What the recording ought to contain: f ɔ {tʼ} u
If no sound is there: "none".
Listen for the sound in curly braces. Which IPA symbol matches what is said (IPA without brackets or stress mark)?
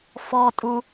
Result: tʼ